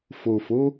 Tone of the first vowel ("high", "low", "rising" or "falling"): low